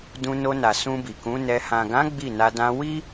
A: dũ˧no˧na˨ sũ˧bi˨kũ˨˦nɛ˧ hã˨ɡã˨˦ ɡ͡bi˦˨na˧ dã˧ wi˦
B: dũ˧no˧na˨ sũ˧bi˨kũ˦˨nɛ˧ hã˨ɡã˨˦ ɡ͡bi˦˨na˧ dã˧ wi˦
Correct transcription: A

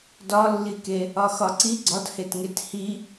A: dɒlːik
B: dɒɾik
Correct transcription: A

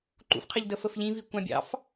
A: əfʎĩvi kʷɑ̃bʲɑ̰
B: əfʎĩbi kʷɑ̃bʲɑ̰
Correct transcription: A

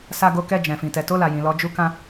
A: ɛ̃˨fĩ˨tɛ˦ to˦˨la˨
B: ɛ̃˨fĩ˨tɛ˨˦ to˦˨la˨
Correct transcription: B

